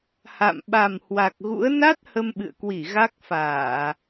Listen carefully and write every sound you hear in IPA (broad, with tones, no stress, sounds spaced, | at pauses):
h a̰˧˨ m ɓ a˨˩ m h w a˨˩ k̚ ɣ ṵ˧˥ ə̯ n a˦˥ t̚ h ə˧ m ɓ ɨ̰˧˨ ə̯ k w i˧˩ ɣ a˦˥ k̚ f aː˧˩˨